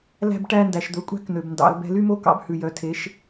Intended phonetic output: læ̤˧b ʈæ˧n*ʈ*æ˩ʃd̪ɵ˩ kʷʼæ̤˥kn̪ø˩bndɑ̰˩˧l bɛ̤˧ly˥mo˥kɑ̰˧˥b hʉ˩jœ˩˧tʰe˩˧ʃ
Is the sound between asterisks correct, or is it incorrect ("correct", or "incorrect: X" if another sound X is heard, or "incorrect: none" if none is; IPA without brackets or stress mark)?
incorrect: d